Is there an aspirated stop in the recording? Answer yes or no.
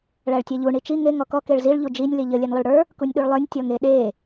no